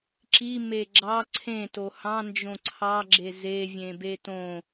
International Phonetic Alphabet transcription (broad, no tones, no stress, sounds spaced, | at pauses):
ǁ i m e ɡ͡ǁ ɑ ǀʰ ẽ t o h ɑ̃ n d͡ʒ õ ǀʰ ɑ ɡ͡ǁ e z e vʲ ẽ b e t õ